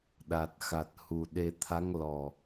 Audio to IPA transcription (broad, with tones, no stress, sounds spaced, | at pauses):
ɗ a˨˩ t̚ x a˨˩ t̚ h u˨˩ ɗ e˧ t̪ʰ a˧˥ ŋ l ɔ˨˩